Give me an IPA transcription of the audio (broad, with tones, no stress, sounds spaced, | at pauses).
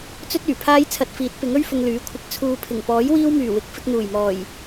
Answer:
t͡s ɵ˥ t̚ yː˨˩ pʰ aː˥ j t͡sʰ ɐ˧ t̚ f iː˨˥ t̚ p ɪ˨˥ ŋ ɵ˥ ɥ f ʊ˨ ŋ l yː˨˥ kʷʰ ɪ˨˥ k̚ t͡sʰ uː˨ pʰ ɪ˨˩ ŋ p ɔː˨˥ j w iː˥ w m yː˨˩ w ɪ˨˥ k̚ f ɪ˧ k̚ n̪ uː˨˩ j m ɔː˨˩ j